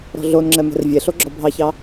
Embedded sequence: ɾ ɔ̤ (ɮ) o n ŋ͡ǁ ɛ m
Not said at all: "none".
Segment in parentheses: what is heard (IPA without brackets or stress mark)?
ɮ